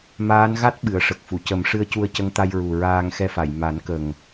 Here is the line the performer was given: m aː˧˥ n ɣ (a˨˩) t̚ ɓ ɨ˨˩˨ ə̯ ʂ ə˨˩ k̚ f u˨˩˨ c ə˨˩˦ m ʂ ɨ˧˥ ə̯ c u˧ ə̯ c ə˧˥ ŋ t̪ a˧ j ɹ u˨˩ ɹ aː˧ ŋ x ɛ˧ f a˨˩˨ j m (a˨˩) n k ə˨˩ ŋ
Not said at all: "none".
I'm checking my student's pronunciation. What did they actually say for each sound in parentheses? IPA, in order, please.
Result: a˦˥, a˨˩˦

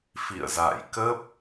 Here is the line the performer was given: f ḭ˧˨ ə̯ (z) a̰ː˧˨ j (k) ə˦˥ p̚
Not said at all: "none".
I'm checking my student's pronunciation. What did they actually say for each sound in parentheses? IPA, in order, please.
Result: z, k

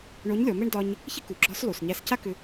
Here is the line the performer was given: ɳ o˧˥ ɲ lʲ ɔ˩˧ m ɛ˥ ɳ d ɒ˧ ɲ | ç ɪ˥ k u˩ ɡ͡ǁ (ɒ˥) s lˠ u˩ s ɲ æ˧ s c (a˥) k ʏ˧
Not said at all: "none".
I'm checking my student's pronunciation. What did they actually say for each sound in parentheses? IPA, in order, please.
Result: ɒ˧˥, a˥

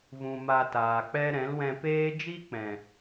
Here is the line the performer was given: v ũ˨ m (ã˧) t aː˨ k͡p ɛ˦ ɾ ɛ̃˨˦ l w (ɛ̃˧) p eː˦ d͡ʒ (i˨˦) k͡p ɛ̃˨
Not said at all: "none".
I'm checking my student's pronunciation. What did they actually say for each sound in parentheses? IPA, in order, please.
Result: a˧, ɛ̃˧, i˦

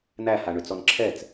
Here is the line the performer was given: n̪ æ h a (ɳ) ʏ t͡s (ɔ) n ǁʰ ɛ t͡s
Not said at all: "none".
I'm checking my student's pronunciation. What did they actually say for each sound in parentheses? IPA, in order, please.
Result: ɳ, ɔ

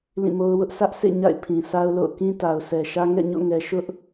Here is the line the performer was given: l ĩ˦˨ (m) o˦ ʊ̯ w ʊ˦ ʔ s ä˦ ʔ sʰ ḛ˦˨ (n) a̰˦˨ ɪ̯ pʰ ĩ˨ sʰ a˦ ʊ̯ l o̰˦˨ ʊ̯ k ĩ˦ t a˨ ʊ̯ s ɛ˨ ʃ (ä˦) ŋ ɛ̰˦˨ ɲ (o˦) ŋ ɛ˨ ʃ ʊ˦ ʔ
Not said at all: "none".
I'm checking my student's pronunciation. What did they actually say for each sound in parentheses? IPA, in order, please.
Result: m, ɲ, ä˦, o̰˦˨

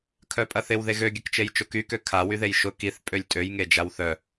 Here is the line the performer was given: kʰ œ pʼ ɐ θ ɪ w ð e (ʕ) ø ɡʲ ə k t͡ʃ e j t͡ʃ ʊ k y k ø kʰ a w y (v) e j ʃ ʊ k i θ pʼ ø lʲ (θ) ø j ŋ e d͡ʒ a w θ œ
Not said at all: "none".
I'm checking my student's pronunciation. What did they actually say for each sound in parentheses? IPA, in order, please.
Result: ɣ, ð, tʼ

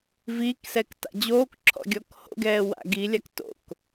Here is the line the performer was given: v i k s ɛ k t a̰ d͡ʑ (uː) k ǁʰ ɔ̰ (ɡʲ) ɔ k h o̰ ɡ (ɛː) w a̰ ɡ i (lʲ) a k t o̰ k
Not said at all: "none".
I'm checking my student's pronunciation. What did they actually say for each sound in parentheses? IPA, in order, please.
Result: oː, ɡʲ, ɛː, lʲ

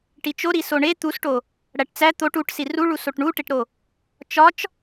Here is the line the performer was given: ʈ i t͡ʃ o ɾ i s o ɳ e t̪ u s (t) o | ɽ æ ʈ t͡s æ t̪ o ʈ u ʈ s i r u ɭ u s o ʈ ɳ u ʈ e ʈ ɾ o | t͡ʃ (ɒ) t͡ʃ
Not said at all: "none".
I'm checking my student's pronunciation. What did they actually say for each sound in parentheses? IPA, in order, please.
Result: ʈ, ɒ

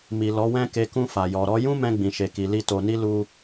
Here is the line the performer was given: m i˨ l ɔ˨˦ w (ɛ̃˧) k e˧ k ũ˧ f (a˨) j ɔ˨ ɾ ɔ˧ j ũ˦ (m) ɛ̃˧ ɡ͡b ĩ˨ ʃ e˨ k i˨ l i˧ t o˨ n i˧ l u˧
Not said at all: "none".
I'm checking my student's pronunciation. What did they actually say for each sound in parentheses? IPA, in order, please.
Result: ɛ̃˦, a˨, m

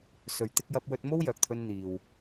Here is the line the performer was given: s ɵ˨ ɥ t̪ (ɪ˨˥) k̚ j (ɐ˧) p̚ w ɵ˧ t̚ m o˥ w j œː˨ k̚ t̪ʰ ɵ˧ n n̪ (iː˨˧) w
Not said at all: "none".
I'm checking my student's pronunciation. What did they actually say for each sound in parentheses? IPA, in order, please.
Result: ɪ˧, ɐ˧, iː˨

